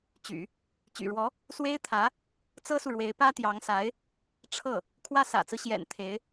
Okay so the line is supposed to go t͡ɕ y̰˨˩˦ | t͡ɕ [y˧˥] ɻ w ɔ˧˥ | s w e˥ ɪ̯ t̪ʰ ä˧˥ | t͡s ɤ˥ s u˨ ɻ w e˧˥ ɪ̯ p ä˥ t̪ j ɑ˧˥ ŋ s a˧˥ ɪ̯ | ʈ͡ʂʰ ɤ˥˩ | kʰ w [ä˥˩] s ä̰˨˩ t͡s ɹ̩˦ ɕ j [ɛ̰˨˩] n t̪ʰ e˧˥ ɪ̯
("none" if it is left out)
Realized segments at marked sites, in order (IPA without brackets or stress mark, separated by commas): y̰˨˩, ä˥˩, ɛ̰˨˩